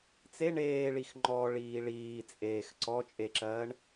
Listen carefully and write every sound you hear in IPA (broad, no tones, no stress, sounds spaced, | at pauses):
t͡s e ɳ eː ɭ i x ŋ͡ǃ ɔ ɭ iː ɭ iː t͡sʼ eː x ǀ ɔ t͡ʃʼ e ǁ ɜː ɳ